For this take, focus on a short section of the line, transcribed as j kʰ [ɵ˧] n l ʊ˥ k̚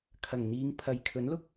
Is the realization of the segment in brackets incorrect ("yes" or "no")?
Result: yes